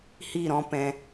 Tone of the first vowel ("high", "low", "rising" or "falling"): falling